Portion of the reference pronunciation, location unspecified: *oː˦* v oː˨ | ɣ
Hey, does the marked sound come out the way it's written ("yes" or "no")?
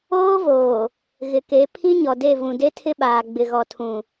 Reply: yes